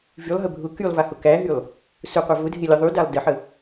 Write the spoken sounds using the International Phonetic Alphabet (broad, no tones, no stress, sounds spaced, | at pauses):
v y lˠ ɦ ə bʱ ʊ k y lˠ v a h ʊ k æ ɦ y lˠ | s ʊ qʷ a v ʊ dʱ e lʲ ə ðˤ y d a lˠ d ə ħ ə